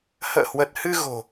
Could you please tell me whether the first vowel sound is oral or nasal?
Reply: oral